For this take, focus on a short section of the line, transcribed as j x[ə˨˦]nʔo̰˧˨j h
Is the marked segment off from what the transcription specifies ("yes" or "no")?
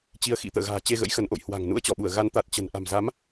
no